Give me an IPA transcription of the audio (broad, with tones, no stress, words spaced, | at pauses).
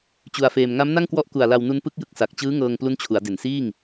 t͡ɕu˧a̯feː˧m ŋa˦˥mna˥˩ŋkwɔ˦˥ʔku˨˩a̯ la˧wnu˦˥n pɯ˦˥k̚jɯ˦˥k̚sa˨˩k̚ t͡ɕɯː˦˥ŋɤː˧ŋ plu˦˥nt͡ɕʰu˩˦a̯de˨˩nsiː˥˩ŋ